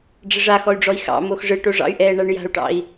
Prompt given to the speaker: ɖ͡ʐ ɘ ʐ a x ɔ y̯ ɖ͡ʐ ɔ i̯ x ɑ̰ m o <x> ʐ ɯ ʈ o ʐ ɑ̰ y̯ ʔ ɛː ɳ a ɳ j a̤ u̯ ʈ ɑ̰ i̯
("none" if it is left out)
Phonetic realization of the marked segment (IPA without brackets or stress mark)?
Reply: x